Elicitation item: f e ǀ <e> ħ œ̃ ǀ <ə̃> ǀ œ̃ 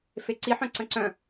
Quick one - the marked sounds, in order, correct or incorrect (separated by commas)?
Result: incorrect, correct